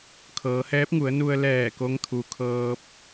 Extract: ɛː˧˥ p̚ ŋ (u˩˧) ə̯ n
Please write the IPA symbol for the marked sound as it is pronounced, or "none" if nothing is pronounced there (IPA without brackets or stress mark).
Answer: u˩˧